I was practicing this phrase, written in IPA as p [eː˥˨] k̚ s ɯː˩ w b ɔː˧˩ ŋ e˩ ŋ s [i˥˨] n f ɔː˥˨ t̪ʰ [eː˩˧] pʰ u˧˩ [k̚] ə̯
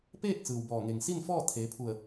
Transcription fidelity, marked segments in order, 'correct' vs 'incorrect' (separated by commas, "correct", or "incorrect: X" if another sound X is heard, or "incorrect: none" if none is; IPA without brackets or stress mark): correct, correct, correct, incorrect: none